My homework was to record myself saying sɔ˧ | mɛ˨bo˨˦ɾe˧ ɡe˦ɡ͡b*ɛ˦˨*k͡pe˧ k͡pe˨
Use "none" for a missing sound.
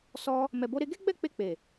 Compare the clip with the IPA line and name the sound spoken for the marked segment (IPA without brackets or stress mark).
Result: ɛ˦˨